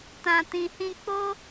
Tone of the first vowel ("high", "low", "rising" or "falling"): low